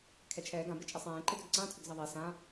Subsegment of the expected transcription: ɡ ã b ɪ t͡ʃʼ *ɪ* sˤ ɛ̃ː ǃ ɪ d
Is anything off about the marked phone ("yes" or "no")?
no